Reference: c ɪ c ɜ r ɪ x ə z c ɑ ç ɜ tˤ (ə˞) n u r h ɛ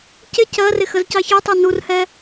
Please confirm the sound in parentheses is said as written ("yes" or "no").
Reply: no